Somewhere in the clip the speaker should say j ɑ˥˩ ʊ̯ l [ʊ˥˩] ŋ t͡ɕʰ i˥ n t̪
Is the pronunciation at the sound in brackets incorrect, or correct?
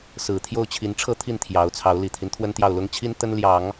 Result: incorrect